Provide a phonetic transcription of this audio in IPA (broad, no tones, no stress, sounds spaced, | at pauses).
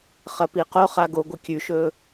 χ ɐ p i q o χ a ɡ o ɡʷ ɨ kʲ ʉ ʃ ɵ